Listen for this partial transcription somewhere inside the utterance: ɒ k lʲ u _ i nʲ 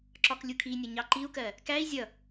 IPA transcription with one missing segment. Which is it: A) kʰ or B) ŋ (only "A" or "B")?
A